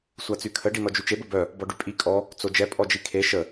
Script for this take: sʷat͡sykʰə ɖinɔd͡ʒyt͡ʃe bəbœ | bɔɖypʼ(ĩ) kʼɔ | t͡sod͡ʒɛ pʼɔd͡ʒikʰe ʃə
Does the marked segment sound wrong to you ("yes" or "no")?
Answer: yes